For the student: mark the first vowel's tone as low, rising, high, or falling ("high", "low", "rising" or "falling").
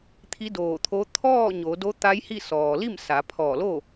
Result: rising